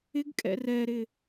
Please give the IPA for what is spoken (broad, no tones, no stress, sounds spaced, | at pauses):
ɪ ɡ kʼ ɛ̰ r ɛ ɾ ɪ